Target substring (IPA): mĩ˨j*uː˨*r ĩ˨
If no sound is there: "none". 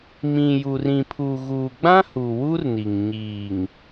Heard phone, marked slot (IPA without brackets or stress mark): u˨